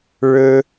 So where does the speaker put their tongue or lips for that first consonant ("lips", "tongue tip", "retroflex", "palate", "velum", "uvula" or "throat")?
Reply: retroflex